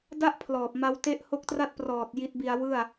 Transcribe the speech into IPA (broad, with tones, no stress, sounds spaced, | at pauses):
d a˥˩ ʔ pʰ l ɔː˨˩ p̚ m a˦˥ w t e˥˩ ʔ h o˦˥ k̚ t r a˥˩ t̚ p r ɔː˨˩ t̚ j i˦˥ t̚ b i˧ a̯ w ɯ˥˩ a̯